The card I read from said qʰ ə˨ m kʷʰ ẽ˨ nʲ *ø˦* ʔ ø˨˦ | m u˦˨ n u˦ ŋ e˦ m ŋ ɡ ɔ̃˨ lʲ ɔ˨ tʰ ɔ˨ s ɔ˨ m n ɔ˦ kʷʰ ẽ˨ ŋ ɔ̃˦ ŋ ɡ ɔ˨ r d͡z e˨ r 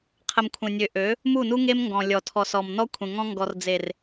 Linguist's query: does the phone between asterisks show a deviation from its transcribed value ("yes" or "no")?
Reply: yes